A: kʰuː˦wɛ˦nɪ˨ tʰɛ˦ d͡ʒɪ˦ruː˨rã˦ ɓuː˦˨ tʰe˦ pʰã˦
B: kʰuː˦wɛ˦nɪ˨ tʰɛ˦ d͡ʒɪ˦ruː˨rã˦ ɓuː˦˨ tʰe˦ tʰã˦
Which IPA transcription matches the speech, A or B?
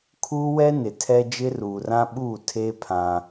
A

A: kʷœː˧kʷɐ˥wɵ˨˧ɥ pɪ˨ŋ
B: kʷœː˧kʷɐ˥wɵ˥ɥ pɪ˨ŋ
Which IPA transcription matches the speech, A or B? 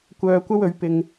A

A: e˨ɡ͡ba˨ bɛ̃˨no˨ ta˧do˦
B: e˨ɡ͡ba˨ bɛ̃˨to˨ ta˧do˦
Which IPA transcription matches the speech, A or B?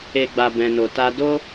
A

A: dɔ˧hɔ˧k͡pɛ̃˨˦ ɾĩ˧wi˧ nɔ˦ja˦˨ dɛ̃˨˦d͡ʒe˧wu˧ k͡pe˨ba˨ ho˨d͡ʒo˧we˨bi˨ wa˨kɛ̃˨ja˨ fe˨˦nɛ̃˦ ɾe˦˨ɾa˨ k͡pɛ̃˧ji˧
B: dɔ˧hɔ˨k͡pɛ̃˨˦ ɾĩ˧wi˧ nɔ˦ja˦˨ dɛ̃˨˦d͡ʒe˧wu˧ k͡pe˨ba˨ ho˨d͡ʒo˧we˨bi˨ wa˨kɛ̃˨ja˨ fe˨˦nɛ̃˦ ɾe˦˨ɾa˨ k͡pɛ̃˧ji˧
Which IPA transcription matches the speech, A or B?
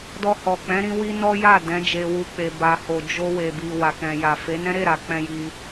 B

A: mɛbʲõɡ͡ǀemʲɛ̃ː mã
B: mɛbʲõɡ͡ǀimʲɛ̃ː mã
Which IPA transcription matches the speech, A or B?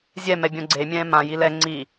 A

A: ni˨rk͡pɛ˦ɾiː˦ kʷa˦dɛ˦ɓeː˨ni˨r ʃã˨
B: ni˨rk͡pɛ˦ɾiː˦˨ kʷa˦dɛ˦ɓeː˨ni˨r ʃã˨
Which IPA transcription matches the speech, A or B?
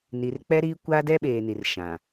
A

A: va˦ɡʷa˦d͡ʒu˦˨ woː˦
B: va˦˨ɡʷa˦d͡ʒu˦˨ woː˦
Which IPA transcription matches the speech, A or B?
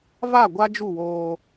B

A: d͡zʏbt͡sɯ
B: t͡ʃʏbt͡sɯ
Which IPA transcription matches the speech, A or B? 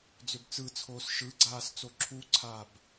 A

